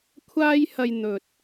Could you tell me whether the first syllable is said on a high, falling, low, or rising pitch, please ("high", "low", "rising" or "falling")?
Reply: high